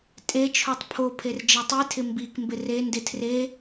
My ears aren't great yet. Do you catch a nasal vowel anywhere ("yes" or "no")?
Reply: no